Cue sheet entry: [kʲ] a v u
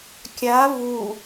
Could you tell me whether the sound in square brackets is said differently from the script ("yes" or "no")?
no